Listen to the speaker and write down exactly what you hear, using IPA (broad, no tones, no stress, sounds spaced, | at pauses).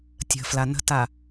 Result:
tʲ ə̤ f l a n ə̤ t a